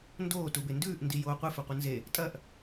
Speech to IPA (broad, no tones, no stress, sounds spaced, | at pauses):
n d oː t u b e n d ʉː ʔ n d i j oː qʷ ɨ f ʉ qʷ ɨ n z e | tʼ ɐ ʔ